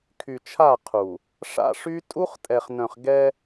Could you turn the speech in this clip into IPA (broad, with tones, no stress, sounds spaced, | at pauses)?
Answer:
kʰ y˨ t͡ʃʰ a˦˨ qʰ u˨ | ʂ a̰˦ ʂ y˦ tʼ u˦ χ tʼ ɛ˨ χ n œ̃˨ χ ɡ ɛ˦